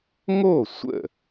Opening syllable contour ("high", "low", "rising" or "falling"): falling